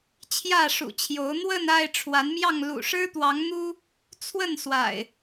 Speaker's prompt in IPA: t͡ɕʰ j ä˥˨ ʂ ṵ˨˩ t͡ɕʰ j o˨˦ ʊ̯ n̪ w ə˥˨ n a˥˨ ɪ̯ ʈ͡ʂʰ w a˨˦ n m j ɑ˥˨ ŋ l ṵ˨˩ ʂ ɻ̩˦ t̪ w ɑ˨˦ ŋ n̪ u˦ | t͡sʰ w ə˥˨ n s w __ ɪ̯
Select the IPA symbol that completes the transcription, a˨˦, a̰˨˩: a̰˨˩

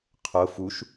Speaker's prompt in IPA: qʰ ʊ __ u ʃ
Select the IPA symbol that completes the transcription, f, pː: f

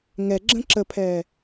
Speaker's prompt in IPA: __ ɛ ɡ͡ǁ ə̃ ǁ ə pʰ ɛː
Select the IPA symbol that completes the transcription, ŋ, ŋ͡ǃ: ŋ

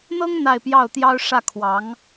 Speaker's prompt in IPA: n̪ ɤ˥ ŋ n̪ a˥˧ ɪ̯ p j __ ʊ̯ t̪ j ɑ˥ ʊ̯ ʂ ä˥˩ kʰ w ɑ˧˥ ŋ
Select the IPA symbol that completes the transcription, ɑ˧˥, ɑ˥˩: ɑ˥˩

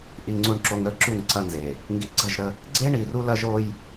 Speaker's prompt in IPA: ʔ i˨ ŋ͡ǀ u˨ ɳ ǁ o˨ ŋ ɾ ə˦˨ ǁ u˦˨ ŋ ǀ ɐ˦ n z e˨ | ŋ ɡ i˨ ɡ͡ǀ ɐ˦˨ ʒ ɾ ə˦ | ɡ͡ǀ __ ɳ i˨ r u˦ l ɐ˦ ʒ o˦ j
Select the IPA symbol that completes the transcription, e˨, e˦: e˦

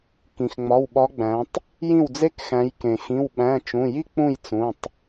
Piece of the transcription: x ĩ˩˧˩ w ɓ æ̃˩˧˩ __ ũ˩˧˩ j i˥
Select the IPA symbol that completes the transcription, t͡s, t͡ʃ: t͡ʃ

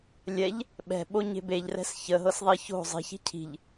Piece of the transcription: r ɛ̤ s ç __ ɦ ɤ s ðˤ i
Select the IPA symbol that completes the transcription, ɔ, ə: ə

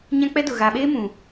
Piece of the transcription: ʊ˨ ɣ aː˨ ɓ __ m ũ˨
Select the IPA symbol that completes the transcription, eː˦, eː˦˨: eː˦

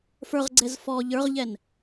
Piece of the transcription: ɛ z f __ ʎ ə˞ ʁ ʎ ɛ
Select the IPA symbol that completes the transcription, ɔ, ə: ɔ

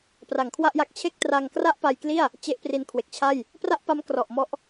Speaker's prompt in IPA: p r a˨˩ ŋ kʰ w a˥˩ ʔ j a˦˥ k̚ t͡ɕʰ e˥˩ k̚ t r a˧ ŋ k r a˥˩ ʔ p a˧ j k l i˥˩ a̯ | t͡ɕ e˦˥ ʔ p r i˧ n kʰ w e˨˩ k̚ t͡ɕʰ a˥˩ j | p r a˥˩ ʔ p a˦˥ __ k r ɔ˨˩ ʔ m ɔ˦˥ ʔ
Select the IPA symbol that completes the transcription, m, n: m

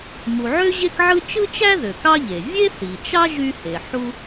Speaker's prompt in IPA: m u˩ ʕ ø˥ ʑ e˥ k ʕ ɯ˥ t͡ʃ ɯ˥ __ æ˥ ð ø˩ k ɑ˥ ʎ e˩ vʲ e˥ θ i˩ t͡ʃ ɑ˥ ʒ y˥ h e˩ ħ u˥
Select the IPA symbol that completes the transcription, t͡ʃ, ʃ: t͡ʃ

